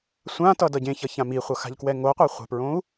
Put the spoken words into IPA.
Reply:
sʷ ã t ʌ d ʌ ɟ ẽ ç ʌ ç ã m i χʷ ʌ x a̤ ʎ k w ɛ ŋ o qʷ a χʷ ɛ̤ p ɹ õ u̯

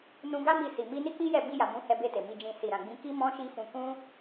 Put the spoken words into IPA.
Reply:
n ũ˧ ɡ a˦ m i˧ s i˨ m i˧ n i˦ k͡p i˦ j ɛ˦˨ b i˧ j a˨ m ũ˨˦ h ɛ˧ b e˧ t e˨ m i˨ d͡ʒ ĩ˨ s i˨ ɾ ã˨ ɡ͡b ĩ˨˦ k i˦ m ɔ̃˦ ʃ i˦ f ũ˧ k ũ˦

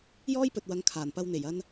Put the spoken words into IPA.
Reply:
j ɔː˥ j p ɵ˨ t̚ w ɐ˨˧ ŋ kʰ aː˨˩ n p ɐ˧ w n̪ e˨˩ j ɐ˧ n

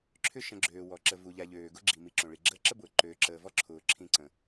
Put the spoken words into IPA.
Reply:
ǁʰ ʏ˥ ʃ ə̃˨ ɡ͡ǁ øː˩ w ɔ˩ ǁ ə˨ v u˩ ʎ a˨ ʎ øː˩ ɡ ʊ˥ ɡ͡ǁ i˩ m i˨ ǁ õ˩ ɭ i˩ ɡ͡ǁ əː˦ ǁ ə˥ b ʊː˩ ǃ øː˨ ǁ əː˨ v ɔ˥ ǁʰ ʊː˨ ǁʰ ĩ˦ ǀ ə̃˩

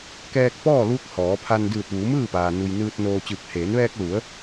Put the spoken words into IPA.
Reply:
k ɛː˧ k̚ p ɔː˥˨ l uː˧˥ k̚ h ɔː˩˧ pʰ a˧ n d ɯː˧˩ t̚ ʋ uː˩˧ m ɯː˥˨ p aː˩ n u˩ j n ɯː˧ t̚ n oː˧ t͡ɕ ɯː˧˩ k̚ h eː˩˧ n ʋ ɛː˧ k̚ l u˩˧ ə̯

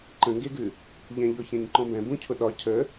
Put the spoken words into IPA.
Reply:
ǃ ə̃ ŋ ɡ e ɡ ʉ | ʎ ɛ̃ ʎ ɔ ç ɛ̃ ɲ ǃ ɔ̃ b ɛ̃ b ũ cʰ ʊ ɗ ɒ cʰ ə

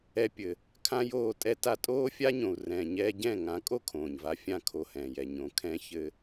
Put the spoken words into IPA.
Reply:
ɛ˧ pʲ ɘ˨ | kʰ ã˦ j oː˦˨ tʼ ɛ˦ t a˦ tʼ oː˦ fʲ a˦ ɲ õ˨ u̯ r ɛ̃ː˨ ɲ ɛː˦ ɟ ɛ̃˦˨ ŋ ã˨˦ kʼ o˦ kʰ õː˨ ɲ v a˧ fʲ ã˦˨ kʰ o˧ h ɛ̃ː˨ j ɛ˨ ɲ õ˨ kʰ ɛ̃˧ ç ɘ˦

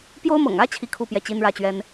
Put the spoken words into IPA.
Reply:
p j o˥ ʊ̯ m ɤ̰˨˩ ŋ ä˥ t͡ɕʰ i˥ kʰ u˥˧ p j ɛ˥˩ t͡ɕ i˥ n ɻ ä˥˩ t͡ɕ ɥ ɛ˥ n

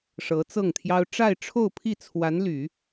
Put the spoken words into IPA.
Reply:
ʂ ɤ˧˥ t͡s ɤ˥˩ ŋ t̪ʰ j ɑ˥ ʊ̯ ʈ͡ʂ a˥˧ ɪ̯ ʈ͡ʂʰ o˥˧ ʊ̯ pʰ i˥˩ t͡sʰ w a˧˥ n l y˨˩˦

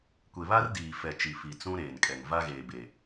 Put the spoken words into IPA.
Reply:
kʷ e˨ β a˦ r d iː˨ f ɛ˨ t͡ʃ i˨ f i˨ t͡s ũ˦ ɾ eː˨ n kʼ ɛ˨ ŋ v a˦ ɣ eː˨ b e˨

